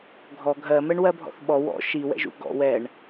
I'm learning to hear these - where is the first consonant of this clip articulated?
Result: velum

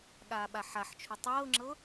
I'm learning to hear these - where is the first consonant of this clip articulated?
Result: velum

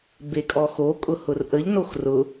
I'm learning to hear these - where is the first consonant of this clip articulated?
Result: lips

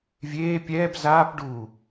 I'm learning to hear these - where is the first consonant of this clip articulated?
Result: lips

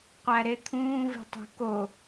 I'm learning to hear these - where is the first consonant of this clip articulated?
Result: uvula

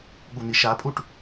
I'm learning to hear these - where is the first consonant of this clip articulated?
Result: velum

